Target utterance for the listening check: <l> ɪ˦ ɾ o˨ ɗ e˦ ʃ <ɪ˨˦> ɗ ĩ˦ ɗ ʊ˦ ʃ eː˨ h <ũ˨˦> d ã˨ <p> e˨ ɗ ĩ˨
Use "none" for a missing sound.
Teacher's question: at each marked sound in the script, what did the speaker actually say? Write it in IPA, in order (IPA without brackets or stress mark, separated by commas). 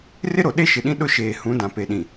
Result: r, ɪ˨, ũ˨˦, p